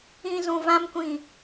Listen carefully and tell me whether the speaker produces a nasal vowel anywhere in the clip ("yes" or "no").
yes